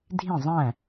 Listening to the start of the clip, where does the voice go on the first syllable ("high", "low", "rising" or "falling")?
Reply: falling